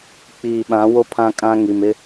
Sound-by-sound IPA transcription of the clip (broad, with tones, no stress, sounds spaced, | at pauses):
k͡p iː˨ ɓ ã˨˦ w o˦ pʰ ã˦ kʼ ã˦ ŋ i˨ m ɪ˦